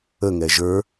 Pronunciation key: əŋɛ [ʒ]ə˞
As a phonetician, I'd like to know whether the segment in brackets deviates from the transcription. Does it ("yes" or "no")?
no